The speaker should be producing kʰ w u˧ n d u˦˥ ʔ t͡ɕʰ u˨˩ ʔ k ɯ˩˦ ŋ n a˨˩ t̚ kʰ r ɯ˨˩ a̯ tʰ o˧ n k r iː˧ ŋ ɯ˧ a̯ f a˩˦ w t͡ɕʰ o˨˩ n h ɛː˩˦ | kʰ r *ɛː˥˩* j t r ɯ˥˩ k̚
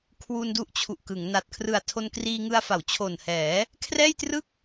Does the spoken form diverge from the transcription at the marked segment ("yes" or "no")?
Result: no